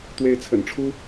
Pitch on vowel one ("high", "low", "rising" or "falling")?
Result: rising